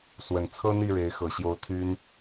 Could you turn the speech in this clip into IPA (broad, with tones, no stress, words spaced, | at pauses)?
swə˨˩nt͡sʰɤ˥n̪i˥˩ ɻe˧˥ɪ̯xɤ˨˩ɕjo˧˥ʊ̯ t̪ʰy˥n